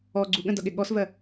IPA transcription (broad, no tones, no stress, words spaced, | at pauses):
ɔ ɡ͡ǀuɠə̃dʌɠɪ ɠɔsvɜ